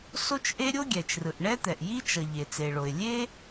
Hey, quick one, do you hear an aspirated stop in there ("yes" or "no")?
no